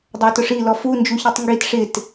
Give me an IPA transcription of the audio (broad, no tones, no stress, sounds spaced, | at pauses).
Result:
dˤ æ t ʊ ʂ i l ɔ f u n d͡ʒ u ç i tˤ ŋ ɡ i t ʂ ɪ t